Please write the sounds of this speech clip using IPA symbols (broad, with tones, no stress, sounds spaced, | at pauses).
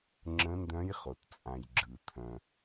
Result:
ŋ͡ǁ ə̃˧˥ n d œ̃˧˥ j χ o˩ t t͡sʼ ã˩ j ɡ͡ǁ ɯ˩ t̪ʰ œ̃˩